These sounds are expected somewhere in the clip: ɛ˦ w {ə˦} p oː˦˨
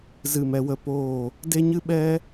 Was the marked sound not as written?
no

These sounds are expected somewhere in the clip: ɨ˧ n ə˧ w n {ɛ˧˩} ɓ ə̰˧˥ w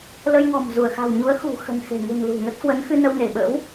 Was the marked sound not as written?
yes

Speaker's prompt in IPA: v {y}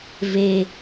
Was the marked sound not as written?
yes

